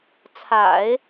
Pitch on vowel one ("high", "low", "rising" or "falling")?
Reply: low